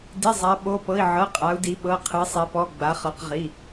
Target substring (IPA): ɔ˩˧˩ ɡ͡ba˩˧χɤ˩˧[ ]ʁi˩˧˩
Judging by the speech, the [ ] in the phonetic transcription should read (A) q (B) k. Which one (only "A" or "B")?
A